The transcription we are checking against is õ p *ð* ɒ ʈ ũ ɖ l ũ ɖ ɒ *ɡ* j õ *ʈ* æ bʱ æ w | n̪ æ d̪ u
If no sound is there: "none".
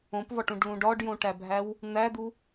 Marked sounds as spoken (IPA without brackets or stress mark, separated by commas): v, ɖ, ʈ